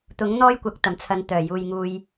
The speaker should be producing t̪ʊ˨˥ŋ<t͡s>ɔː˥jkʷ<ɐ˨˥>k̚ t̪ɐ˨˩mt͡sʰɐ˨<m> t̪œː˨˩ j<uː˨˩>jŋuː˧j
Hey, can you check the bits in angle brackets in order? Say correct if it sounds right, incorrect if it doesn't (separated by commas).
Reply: incorrect, correct, incorrect, incorrect